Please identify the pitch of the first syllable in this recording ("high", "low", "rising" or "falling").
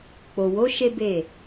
low